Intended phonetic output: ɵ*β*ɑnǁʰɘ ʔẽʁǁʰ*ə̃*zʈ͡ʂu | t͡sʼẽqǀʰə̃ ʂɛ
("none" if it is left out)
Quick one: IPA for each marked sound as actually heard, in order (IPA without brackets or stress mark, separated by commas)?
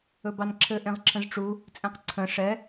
b, ə̃